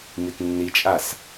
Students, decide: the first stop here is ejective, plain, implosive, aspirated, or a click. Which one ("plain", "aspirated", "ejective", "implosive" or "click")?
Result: plain